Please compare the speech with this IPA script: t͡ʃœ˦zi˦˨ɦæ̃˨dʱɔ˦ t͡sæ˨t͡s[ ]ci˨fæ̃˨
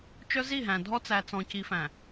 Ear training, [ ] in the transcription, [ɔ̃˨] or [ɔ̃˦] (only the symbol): ɔ̃˨